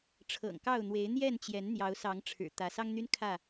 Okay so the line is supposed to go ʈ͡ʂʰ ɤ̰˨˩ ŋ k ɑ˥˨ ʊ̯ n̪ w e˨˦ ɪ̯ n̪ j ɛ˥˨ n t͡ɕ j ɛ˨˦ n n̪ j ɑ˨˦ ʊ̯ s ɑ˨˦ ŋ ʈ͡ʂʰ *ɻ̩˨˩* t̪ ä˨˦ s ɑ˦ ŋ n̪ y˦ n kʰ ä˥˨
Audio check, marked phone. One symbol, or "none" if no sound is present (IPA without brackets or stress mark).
ɻ̩˨˩